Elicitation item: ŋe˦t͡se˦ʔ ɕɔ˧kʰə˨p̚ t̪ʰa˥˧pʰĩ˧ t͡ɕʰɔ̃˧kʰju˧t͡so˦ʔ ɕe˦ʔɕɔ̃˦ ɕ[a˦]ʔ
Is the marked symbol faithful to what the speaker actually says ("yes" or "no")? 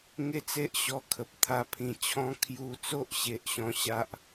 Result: yes